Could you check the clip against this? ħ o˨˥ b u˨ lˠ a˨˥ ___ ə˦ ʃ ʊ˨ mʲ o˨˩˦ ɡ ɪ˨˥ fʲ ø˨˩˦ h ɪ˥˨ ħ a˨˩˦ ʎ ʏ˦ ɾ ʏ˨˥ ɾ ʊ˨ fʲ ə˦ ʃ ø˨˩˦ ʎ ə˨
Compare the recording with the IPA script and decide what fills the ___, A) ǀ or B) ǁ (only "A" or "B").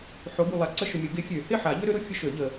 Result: A